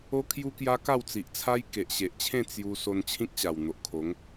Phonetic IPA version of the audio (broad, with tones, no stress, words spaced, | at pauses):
o˦kʰju˦ kja˦ka˥˧wt͡si˨ʔt͡sʰa˦j ke˨ʔɕe˨ʔt͡ɕʰẽ˥˧ t͡sju˧ so˧nt͡ɕʰĩ˦k̚ɕa˨˩w n̪o˨ʔkʰo˨˦ŋ